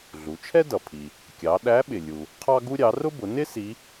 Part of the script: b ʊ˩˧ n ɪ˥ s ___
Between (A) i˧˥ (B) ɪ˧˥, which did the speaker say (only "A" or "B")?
A